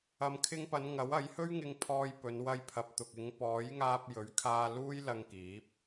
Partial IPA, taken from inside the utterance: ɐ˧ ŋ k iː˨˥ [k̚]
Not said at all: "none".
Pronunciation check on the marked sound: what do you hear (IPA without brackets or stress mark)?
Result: p̚